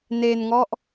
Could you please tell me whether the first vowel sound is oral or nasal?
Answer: oral